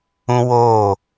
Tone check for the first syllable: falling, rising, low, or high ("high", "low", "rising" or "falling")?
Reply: high